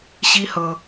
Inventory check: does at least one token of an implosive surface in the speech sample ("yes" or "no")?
no